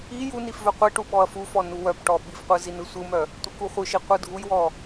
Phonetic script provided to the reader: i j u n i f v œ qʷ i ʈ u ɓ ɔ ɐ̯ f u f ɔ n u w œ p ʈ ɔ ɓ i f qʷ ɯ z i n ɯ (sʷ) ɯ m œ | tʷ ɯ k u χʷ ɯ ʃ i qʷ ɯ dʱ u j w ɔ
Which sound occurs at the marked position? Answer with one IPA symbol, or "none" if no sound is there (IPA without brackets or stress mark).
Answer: sʷ